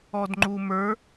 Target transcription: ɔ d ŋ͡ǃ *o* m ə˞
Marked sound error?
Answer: yes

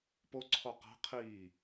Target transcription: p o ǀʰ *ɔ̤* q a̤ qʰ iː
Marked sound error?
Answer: yes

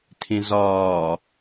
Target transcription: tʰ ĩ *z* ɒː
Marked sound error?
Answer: no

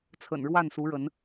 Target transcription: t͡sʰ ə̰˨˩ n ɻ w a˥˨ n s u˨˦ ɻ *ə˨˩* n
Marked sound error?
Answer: yes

